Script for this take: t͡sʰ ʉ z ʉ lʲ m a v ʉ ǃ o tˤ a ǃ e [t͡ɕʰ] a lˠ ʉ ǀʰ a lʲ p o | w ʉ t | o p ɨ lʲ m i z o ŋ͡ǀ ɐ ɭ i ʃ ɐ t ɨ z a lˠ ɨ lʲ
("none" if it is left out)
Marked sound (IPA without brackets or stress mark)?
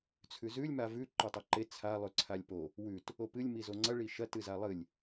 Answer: t͡sʰ